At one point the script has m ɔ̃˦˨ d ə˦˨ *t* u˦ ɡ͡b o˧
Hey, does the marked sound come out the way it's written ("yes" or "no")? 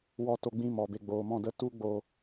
yes